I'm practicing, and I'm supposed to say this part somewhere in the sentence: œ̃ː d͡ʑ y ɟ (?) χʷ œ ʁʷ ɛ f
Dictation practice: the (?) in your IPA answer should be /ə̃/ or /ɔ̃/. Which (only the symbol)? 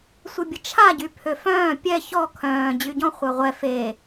ɔ̃